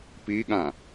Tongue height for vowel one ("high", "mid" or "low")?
high